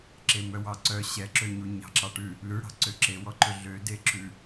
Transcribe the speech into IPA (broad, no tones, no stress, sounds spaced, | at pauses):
ǁ e m œ w ɑ ǀ œ ɕ ɛ ǁ ø ɲ u ɲ ɑ̤ ǁ ɑ ʈ ʉ | l ʉ ɽ ɑ̤ ǀ ø ǁ e w ɔ ǃ ɵ ɮ ø d e ǁ ʉ